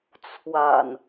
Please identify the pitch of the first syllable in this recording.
low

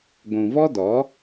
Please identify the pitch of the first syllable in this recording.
low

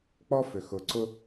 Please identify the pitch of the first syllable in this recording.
high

